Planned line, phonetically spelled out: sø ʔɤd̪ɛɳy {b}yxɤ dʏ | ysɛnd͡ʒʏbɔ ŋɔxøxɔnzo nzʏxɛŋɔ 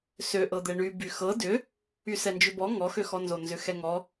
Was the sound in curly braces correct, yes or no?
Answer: yes